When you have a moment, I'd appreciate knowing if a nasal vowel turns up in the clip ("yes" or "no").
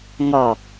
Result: no